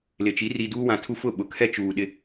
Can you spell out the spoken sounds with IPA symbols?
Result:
l ɪ˨ t͡ʃ i˨˦ r i˨ d uː˦ w ã˨ tʰ u˦ f ʊ˦˨ ɓ ʊ˨ kʰ ɛ˦ t͡ʃ uː˨ ɗ ɪ˦

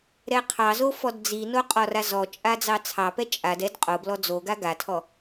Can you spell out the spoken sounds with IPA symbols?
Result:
ɾ ɛ qʰ ɑ z o f ɔ d d͡z i n o qʼ ɔ r a z ɔ t͡ʃʼ a d͡z ɑ t͡sʰ ɑ p ɛ t͡ʃʼ a d ɛ d qʼ o b l ɔ d͡z o ɡ a ɡ a tʰ ɔ

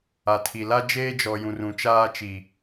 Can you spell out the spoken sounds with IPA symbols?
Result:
a˨ tʰ i˨ l a˦ d͡ʒ eː˦ d͡ʒ ɔ˨ j ũ˨ r ũ˨ t͡ʃ aː˦ t͡ʃ i˨

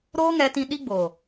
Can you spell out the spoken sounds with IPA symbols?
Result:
ɾ oː˦ ŋ ɛ˧ t ĩ˧ ɗ i˦ ɡ͡b oː˨

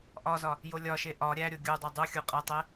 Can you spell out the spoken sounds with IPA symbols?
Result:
ʔ ɒ z ɒ | j o lʲ ɒ ʃ e ʔ ɒ ɾʲ æ ɾʲ o ɡʲ u dˤ æ dˤ u xʲ u qʼ æ tˤ e

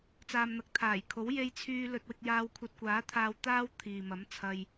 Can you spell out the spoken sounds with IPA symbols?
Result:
t͡s aː˨ m n̪ ɐ˨ k̚ t̪ʰ aː˨˩ j kʰ o˨˥ w j e˧ j t͡sʰ yː˧ l ɵ˧ t̚ w ɪ˧ k̚ j aː˧ w kʷʰ ɐ˧ t̚ kʷ aː˨˥ t̪ʰ aː˧ w t̪ aː˥ w t̪ʰ iː˨ m ɐ˨˥ m t͡sʰ ɐ˧ j

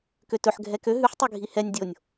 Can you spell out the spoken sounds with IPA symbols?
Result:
k ø t ɵ ħ ɡʱ ɛ k ø ɦ ʉ ħ tˤ ʉ ɡʱ i h ɛ nʲ dʲ o nʲ

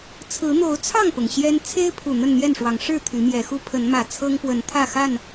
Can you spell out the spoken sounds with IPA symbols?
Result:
t͡sʰ ɹ̩˨˦ n̪ o˨˦ ʊ̯ t͡sʰ ɑ˥˨ ŋ p ʊ˩ ŋ ɕ j ɛ˦ n t͡sʰ e˦ ɪ̯ pʰ u˨˩ n̪ ə˥˨ n n̪ j ɛ˥˨ n ʂ w ɑ˨˦ ŋ ʂ ɻ̩˥˨ t̪ʰ y˨˦ m j ɛ˨˦ x u˦ pʰ ə˨˦ n m ä˨˩ t͡sʰ ɤ˦ ŋ p w ə˨˦ n t̪ʰ ä˥˨ x a˥˨ n

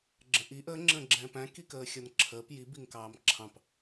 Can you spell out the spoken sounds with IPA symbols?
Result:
ɡ͡ǁ ə̃ ʔ i ʔ ə ŋ͡ǁ ə̃ ɡ͡ǁ ɛ̃ p æ̃ k i k əː xʲ ʌ n ǁʰ əː p j i b i ŋ k ɑː m ǁʰ ɑ̃ p

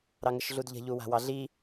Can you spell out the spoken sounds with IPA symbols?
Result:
ɾ ɑ ŋ ə ʃ ɮ u d ʎ ə̤ ʎ u w a̤ w ɑ ɮ i

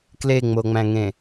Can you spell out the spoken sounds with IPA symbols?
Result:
k l e ŋ͡m o ŋ͡m æ̃ ŋ ẽ

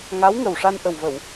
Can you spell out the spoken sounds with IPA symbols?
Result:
ŋ a˧˥ w ŋ ə˨˩ w ʂ a˧ n ʔ ə˨˩ w v ə˨˩˨ w

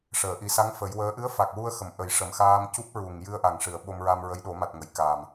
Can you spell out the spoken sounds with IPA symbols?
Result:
ʂ əː˨˩˨ ʔ i˨˩˦ s a˧˥ ŋ f ə˨˩˦ j w əː˧˥ ʔ ɨ˧˥ ə̯ f a˨˩ k̚ w u˧ ə̯ x ə˨˩ m ʔ ə˨˩˦ j ʂ ə˨˩ m x aː˧ m c u˦˥ p̚ ɹ u˨˩ ŋ j ɨ˧ ə̯ ʔ a˨˩˨ ŋ ʂ ɨ˨˩˨ ə̯ ɓ o˧ m ɹ a˧ m ɹ ə˧˥ j ɗ o˨˩˦ m a˨˩ t̚ ŋ ə˨˩˨ j k aː˨˩ m

